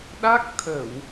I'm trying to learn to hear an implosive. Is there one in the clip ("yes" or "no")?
yes